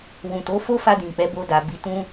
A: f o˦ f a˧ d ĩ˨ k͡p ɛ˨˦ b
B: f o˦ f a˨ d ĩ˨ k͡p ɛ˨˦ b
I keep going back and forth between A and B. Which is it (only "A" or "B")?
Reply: A